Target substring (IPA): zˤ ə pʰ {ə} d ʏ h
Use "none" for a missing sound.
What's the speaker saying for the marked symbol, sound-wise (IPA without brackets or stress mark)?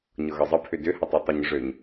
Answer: ʏ